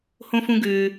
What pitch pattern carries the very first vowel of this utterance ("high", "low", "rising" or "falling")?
high